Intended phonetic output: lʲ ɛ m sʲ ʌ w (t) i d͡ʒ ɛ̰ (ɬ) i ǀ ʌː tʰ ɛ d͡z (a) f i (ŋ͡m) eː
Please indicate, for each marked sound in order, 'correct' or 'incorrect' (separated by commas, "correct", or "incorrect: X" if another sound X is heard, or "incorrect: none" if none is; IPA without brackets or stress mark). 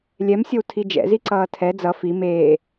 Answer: incorrect: tʰ, incorrect: z, incorrect: ʌ, incorrect: m